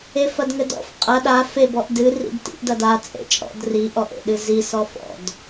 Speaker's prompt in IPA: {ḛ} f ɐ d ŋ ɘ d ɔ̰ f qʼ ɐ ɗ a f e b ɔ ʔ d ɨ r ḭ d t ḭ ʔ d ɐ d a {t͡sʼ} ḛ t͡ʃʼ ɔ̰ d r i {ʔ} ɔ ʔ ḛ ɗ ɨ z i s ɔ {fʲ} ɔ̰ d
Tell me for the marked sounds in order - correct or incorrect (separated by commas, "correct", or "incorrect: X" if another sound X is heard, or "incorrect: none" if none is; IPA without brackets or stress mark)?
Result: incorrect: e, correct, correct, incorrect: f